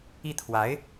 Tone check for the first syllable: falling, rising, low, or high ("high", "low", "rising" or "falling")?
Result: falling